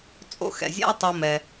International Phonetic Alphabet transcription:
t͡sʼo̰˧xɛ̰˨zʲa̰˦ə̯tˤo˧ mɛ˧

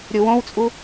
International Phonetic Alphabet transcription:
ɾʲuwõwt͡sʼu

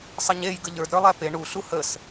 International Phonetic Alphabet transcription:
sˤəɲej ɡəʎə˞d ɾə˞lˠæpe ɳu ɬuhəs

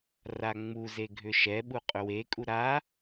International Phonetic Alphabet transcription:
raŋ͡muze ɡʱʏʃɛɓu qʼʏwekʼu ɾa

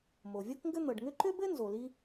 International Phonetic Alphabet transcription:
mo˩vʲɤ˥kŋɡɘ˥ n̪ɤ˩ɖŋʏ˥ ǃʏ˥bɘ˥ nzo˩li˥

